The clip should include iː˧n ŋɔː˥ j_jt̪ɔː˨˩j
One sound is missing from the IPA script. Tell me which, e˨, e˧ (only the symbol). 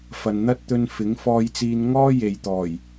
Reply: e˨